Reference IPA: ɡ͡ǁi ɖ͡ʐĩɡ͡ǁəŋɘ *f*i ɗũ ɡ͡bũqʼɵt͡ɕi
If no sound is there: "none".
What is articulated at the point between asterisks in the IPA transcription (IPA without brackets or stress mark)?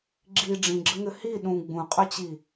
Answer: h